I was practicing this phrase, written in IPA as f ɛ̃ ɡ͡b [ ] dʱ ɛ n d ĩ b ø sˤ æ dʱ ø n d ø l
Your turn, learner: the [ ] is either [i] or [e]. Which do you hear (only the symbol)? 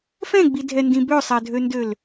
i